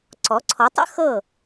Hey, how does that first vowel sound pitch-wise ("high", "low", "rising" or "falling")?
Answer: rising